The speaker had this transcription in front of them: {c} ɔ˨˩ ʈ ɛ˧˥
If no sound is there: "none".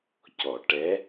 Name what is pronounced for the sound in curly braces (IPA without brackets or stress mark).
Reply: c